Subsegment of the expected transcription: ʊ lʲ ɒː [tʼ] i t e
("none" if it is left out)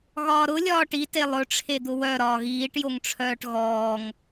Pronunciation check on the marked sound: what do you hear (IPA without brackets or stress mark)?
ʈ